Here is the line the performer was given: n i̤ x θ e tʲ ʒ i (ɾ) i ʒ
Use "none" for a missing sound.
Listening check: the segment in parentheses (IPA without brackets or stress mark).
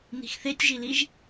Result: l